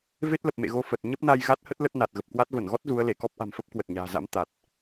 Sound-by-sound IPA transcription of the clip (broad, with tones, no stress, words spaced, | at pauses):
ve˦˥t̚lə˨˩p̚mḛ˧˨ɣo˧ fə˨˩t̚ ɲə˦˥p̚na˧j ɣa˦˥t̚hə˦˥t̚ lə˦˥t̚ na˨˩t̚ɣə˨˩p̚kwa˦˥t̚ və˧˩nɣɔ˦˥t̚ zu˨˦ə̯le˧˩ kɔ˦˥p̚ʔa̤˨˩mfə˦˥p̚ kwə˨˩t̚ɲa̤ː˨˩za̰˧˥m t̪a˨˩t̚